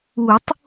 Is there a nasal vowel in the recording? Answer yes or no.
no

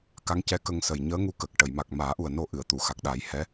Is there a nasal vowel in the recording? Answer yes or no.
no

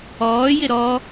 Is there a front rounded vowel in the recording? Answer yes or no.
no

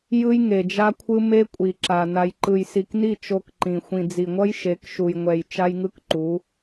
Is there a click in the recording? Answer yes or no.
yes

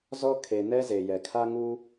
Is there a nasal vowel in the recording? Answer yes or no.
no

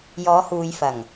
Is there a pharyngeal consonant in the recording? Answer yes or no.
no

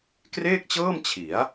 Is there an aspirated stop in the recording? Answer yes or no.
yes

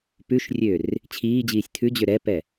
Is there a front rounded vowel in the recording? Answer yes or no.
yes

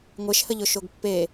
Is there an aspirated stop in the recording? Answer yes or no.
no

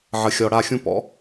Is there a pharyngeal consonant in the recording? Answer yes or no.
yes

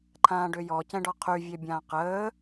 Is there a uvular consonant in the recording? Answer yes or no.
yes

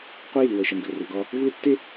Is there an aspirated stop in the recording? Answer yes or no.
no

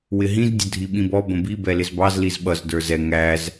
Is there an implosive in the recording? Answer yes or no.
yes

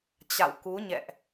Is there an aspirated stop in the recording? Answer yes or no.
no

